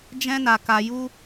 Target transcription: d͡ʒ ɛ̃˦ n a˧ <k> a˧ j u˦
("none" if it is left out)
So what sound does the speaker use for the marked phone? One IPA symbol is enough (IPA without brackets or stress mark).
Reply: k